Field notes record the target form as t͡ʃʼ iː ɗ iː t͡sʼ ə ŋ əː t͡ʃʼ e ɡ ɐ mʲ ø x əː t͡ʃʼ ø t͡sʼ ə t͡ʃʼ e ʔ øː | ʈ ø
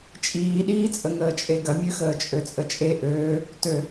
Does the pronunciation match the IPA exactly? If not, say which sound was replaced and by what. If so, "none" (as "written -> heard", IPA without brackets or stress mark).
ʈ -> t